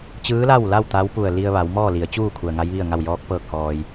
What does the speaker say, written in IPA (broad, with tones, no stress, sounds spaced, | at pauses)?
t͡ɕ ɯː˧˥ l a˥˨ w l a˥˨ w t̪ a˧˥ w p u˧˩ ə̯ l i˧ ə̯ ʋ a˩˧ w m ɔː˥˨ l i˩˧ ə̯ t͡ɕ uː˥˨ kʰ u˩ ə̯ ŋ a˧˥ j ʋ i˥˨ ə̯ ŋ a˥˨ w j ɔː˧˥ k̚ p ɤː˥˨ k̚ h ɔː˧ j